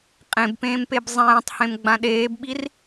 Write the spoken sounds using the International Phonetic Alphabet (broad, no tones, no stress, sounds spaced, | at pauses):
qʼ ẽ b p ẽː m p e b zˤ ẽː tˤ h ẽ m ɡ͡b ã ɗ eː b ɓ i r